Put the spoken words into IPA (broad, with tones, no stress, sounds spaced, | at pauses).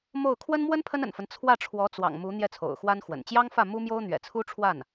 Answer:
m o˥˩ ʊ̯ kʰ w ə˥ n m w ə˥ n pʰ ə˥ n ə̰˨˩ n f ə˦ n t͡sʰ w ä˥˩ ʈ͡ʂʰ w ɔ˧˥ t͡s w ɑ̰˨˩ ŋ m u˧˥ n̪ j ɛ˥˩ t͡sʰ o̰˨˩ ʊ̯ x w a˥ n x w ə̰˨˩ n t͡ɕ j ɑ˥ ŋ f ä˥˩ m u˥ m j o˥ ʊ̯ n̪ ɥ ɛ̰˨˩ t͡sʰ u˥ ʈ͡ʂʰ w a˥˩ n